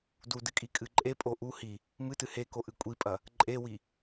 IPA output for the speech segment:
dudɨkʼi kʼɨǃʼe pʼoʔu hi | mɨtɨ heko ʔɨkʷʼipʼɐ | ǃʼewi

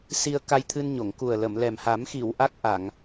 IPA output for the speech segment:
si˧ə̯ka˧jt̪ʰɨ˧nɲo˨˩˨ŋ ku˨˩ə̯lə˨˩˨mlɛ˨˩m ha˨˩˦mxi˨˩˨w ʔa˦˥k̚ʔa˨˩˨ŋ

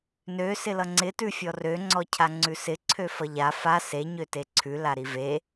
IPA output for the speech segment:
nø sɪlʌŋ͡ǀɪ tʉfʲɔrø ŋ͡ǀɔcʰaŋ͡ǀʉsɪ ǀʰøfʌʎa fa se ɲøteǀʰʉ laɾive

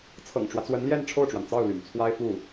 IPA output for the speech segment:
t͡sʰɤ̰˨˩ŋʈ͡ʂwä˦t͡swə˧˥nljɛ˥˧n ʈ͡ʂʰo˥˩ʊ̯ʈ͡ʂwa˩nt͡sɑ˥˩ʊ̯ly̰˨˩n t͡sʰwa˥ɪ̯fu˥˩

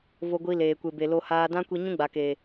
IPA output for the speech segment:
vo˧ɡʷi˧ leː˨ kʷe˨be˨lo˧ haː˧dã˦ kʷi˧ɲũ˦ɡ͡ba˨keː˨

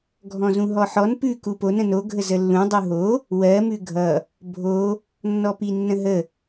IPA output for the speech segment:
ɡʱɔ̃zũɦɔħɔn pʉ kuponə̃ noɡʱəzə lːũ dˤuɦo | wɜmʉ ɡʱʌ | bʱo | nːɔpinːə̃ɦə

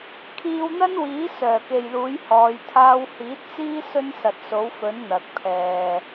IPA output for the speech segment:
kʰiː˧wn̪ɐ˥nwiː˨˥ sœː˨˩ke˨jluː˨˥j hɔː˨˧j t̪ʰaː˧whiː˨˥t̚t͡siː˥ sɵ˥nsɐ˨t̚so˨˥w fɵ˨˥n n̪ɐ˨k̚ pʰɛː˨

